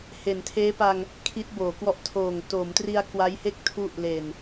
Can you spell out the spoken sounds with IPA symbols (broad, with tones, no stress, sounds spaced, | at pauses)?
h e˩˦ n tʰ eː˦˥ p a˧ ŋ | kʰ i˦˥ t̚ b oː˩˦ k w ɔ˦˥ ʔ tʰ oː˨˩ ŋ t o˩˦ m t r i˧ a̯ k w a˦˥ j h e˥˩ k̚ tʰ u˦˥ ʔ l e˨˩ n